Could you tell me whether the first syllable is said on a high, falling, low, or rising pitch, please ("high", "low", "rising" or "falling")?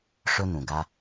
high